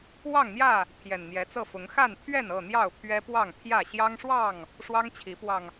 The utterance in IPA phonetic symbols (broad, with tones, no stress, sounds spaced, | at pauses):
w ɑ˥˨ ŋ n̪ j ä˥˨ | t̪ʰ j ɛ˨˩ n n̪ j ɛ˨˦ t͡s ɤ˥˨ f ʊ˨˦ ŋ x a˥˨ n t̪ʰ ɥ ɛ˥˨ n ɤ˥˨ n̪ j ɑ˥˨ ʊ̯ pʰ ɥ ɛ˦ p w ɑ˥˨ ŋ pʰ j ä˥˨ ɕ j ɑ˦ ŋ ʂ w ɑ˥˨ ŋ | ʂ w ɑ˦ ŋ t͡ɕʰ i˨˦ p w ɑ˧ ŋ